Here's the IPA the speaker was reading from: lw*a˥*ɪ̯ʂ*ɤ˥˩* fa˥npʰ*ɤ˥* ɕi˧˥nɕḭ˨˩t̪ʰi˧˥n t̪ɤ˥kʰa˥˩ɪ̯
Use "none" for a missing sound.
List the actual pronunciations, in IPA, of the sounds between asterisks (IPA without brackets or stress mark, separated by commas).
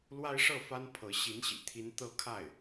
a˥, ɤ˥˩, ɤ˧˥